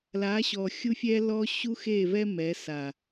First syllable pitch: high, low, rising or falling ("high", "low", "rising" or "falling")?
rising